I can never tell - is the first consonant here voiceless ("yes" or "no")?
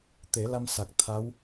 yes